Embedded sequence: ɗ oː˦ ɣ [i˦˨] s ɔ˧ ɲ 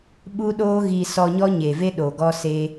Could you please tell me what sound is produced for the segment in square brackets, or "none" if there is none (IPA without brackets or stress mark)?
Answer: i˧